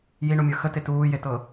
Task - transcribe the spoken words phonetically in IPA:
j i ɳ u mʲ ə˞ x ə t e t uː j e t ɤ

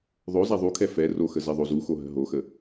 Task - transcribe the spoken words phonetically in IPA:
ðˤ o z a ðˤ u kʰ ɛ f ɛ r o x ə z ɛ ðˤ o z u x o ɦ ə̤ ɦ o x ə

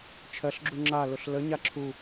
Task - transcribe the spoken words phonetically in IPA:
t͡ʃʰ ɜ ɬ ɡ͡ǁ u ŋ͡ǁ a l ʊ ɬ l ə ɲ a ǁʰ u

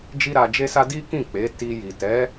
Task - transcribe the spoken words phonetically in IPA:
d͡ʒ i˦ ɾ a˧ d͡ʒ e˦ s a˦ d i˦ k ĩ˦˨ k͡p e˨˦ t i˧ j i˨ t ɛ˨˦

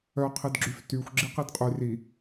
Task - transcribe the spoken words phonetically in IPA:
œ qʰ i d ɡ͡ǁ y f t y xʷ ɡ͡ǁ i q i d qʼ y r i

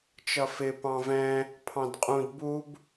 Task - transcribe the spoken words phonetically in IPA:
t͡ʃ ʌ f ɪ p ɑ̃ v ɛ̃ | pʰ ɑ̃ d qʼ ũ d b u b

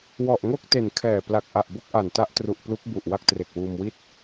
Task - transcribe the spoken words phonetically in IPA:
w ɔ˨˩ ʔ ŋ o˥˩ k̚ t e˨˩ n kʰ ɛː˨˩ p l a˨˩ k̚ ʔ a˨˩ ʔ b o˥˩ k̚ ʔ a˨˩ n t a˦˥ ʔ t r u˨˩ ʔ p l u˦˥ k̚ b u˨˩ ʔ w a˥˩ k̚ t r e˨˩ k̚ w uː˧ m w i˥˩ t̚

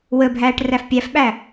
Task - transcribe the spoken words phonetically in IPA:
w ə bʱ æː ʈ r æ f pʲ æ f ɓ æ

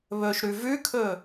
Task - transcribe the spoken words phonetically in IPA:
β ɵ ʃ ɾ ʉ v ʉ kʰ ɵ

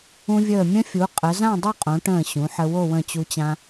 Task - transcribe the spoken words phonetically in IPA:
ũ˧ vʲ əː˧˩ mʲ ə̃˥ fʲ u˩˧ qʼ ə˩˧ z ã˥˧ dˤ u˥˧ qʼ õ˩˧ ʈ ə̃ː˧˩ ɕ ũ˩˧ ħ ə˧ w o˥˧ w ə̃˧˩ t͡ɕ u˧ t͡ɕ ã˧

